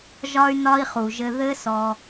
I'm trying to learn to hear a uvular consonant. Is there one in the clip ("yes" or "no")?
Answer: yes